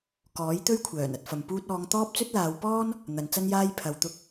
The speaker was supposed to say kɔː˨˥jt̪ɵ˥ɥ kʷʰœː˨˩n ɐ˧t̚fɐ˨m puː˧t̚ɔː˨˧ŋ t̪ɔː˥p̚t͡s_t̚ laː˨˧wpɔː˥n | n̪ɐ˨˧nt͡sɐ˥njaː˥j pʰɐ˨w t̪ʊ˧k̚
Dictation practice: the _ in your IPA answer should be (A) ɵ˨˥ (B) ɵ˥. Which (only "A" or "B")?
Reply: B